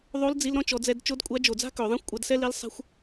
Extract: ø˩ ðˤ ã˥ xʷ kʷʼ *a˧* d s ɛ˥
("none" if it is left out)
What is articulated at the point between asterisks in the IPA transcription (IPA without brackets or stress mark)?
a˧